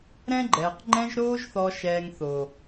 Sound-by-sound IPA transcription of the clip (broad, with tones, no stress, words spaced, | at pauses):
ɾɛ̃˦ɡ͡ǃɛː˨q ŋ͡ǃɛ̃˧ʒɾoː˧ʒθɔ˨ʃɛː˨ŋ θo˨